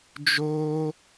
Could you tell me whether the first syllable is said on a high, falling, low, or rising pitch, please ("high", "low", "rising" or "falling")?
high